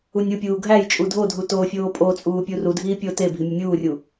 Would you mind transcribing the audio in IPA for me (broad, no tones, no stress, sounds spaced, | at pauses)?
u nʲ u pʲ uː ɡʱ æ j t͡ʃʼ u dʱ o dʱ u t oː fʲ oː pʼ o t͡sʼ uː pʲ u r u dʱ iː pʲ o t e bʱ i mʲ ɒ mʲ uː rʲ u